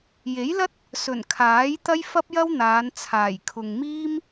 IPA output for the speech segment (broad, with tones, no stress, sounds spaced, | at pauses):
j e˨˥ j l ɐ˥ t̚ | s ɵ˨˩ n kʰ aː˨˥ j t̪ ɐ˥ j f ɐ˥ p̚ j ɐ˥ w n̪ aː˨˧ n t͡sʰ aː˨˩ j kʰ ʊ˨ ŋ m iː˥ m